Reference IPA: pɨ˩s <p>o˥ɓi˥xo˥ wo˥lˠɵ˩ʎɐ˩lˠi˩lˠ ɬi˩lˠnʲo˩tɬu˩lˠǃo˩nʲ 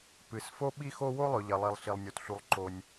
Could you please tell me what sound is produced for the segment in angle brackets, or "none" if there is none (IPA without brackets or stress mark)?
f